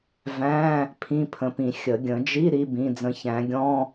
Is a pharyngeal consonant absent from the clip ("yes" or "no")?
yes